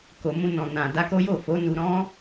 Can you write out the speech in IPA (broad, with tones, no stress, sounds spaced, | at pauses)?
k o˨ m ũ˧ n ɔ̃˨ n ã˨ d a˧ k o˦ j o˦˨ f o˨˦ n u˧ ɾ ɔ̃˦